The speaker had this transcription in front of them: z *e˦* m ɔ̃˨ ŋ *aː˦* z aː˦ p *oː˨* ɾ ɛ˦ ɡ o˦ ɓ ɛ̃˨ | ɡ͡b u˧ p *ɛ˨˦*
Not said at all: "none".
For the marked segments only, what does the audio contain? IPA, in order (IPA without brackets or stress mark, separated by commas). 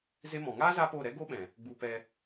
e˦, aː˦, oː˦˨, ɛ˧